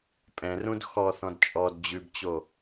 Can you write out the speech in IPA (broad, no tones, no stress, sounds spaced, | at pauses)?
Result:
pʼ ɛ̃ r ũ d x ɔ θ ɔ̃ d t͡ʃʼ ɔ d d͡ʑ ʉ b t͡ɕ o